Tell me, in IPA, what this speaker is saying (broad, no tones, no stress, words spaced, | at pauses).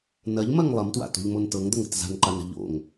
nɐʎmɐŋ lˠɐmtwa̰to̤ʎmon tɤŋd̪ɐŋə̤t za̤nǃanə̤ ʎo̰ŋ